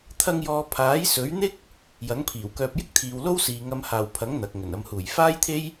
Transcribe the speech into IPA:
t̪ʰ ɐ˧ ŋ j ɔː˨ pʰ aː˨˥ j s ɵ˨˥ ɥ n̪ ɪ˥ k̚ | j ɐ˨˥ ŋ pʰ iː˨˩ w k œː˧ p̚ j ɪ˥ k̚ t̪ʰ iː˨ w l o˥ w s iː˨ ŋ ɐ˨ m h aː˨˩ w pʰ ɐ˨˥ ŋ n̪ ɐ˨ k̚ ŋ ɵ˨˩ n ɐ˨ m h uː˨˩ j f aː˥ j t̪ʰ e˥ j

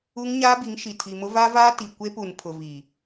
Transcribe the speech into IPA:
u˦ ŋ ɲ aː˦ b i˨˦ ŋ ʃ i˨ tʰ i˨ m ʊ˦ v a˦ v aː˦ t i˨ kʷ e˦ p u˨ n pʰ ʊ˨ v i˨

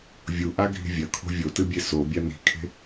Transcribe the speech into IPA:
vʲ u ʔ a ɡʱ i̤ vʲ ɐ kʰ o̤ vʲ o t ɨ bʲ e s o bʲ a n i̤ kʰ e̤

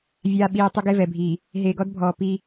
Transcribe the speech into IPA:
vʲ aː˨ ɓ iː˨ tˤ e˦ ɡ e˦ v ɛ˨ bʱ iː˨ | ɦ eː˨ ɡ ɔ˦ d bʱ ɔː˨ p i˦

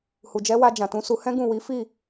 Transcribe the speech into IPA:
h u˨ d͡ʒ ɛ˨˦ w a˧ d͡ʒ ã˨ t ũ˨˦ s u˧ h ɛ̃˦ ɡ ũ˦˨ w i˨˦ f i˦˨

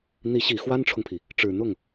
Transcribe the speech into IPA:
n̪ i˧˥ ɕ i˨˩ x w a˥ n ʈ͡ʂʰ ʊ˨ ŋ pʰ i˩ | ʈ͡ʂ ɻ̩˨˩ n̪ ʊ˥˩ ŋ

